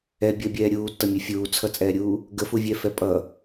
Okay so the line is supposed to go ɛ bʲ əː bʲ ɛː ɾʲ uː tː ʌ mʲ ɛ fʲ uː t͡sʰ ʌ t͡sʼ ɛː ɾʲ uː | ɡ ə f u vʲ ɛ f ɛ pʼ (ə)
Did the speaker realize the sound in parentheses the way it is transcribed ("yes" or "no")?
no